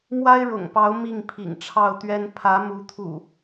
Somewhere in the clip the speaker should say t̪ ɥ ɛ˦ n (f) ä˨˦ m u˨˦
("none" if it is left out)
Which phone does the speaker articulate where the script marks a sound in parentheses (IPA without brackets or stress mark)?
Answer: pʰ